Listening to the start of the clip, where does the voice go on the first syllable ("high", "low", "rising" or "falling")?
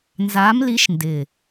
rising